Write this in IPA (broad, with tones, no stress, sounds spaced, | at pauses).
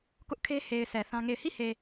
k ʊ˦ ʔ kʰ e˦ h e˨ ɪ̯ s ɛ˨ θ ã˦ ŋ e˦˨ ɪ̯ h i˦˨ h e˨